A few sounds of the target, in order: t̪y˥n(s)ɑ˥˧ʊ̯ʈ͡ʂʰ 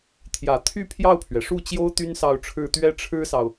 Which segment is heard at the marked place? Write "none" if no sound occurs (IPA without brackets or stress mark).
s